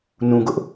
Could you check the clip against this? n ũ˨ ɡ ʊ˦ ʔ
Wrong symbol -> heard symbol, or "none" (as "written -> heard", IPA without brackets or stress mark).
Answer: none